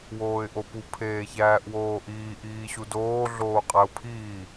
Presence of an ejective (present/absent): present